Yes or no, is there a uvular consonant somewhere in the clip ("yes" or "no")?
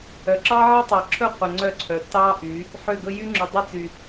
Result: yes